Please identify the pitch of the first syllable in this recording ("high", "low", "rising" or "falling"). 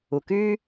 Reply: low